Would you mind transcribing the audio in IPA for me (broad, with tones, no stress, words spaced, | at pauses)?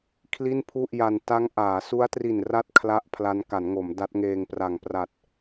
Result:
kʰli˥˩npʰu˥˩ʔja˧n ta˦˥ŋʔaː˩˦ su˦˥a̯tri˨˩nra˦˥t̚ kʰla˥˩ʔpʰla˦˥n ka˩˦nŋo˩˦m da˦˥t̚ŋeː˧ŋpra˨˩ŋ pra˨˩t̚